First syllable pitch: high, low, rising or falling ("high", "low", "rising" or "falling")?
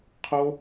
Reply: high